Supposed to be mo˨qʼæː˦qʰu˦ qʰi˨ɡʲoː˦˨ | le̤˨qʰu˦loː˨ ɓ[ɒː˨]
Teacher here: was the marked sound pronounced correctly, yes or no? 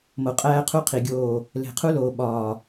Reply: yes